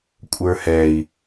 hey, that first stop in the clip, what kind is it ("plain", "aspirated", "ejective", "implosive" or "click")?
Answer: ejective